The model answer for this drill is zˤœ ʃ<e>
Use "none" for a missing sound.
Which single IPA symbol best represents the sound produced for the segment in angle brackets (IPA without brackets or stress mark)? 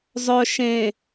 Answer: ẽ